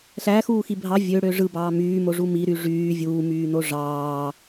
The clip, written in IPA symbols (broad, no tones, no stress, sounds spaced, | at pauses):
ɬ æ x uː x i bʱ ɑ vʲ ø ɽ ø ʐ ɯ b ɑː m yː m o ʐ u m i ɾ y ʐ yː vʲ uː m yː n o ʐ ɑː